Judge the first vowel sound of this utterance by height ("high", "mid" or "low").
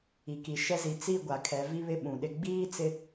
high